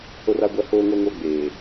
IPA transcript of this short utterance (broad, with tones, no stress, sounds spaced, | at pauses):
h o˦ r a˦ ɡʷ a˦ h oː˦ ŋ o˦ ŋ o˦ ɡ͡b eː˨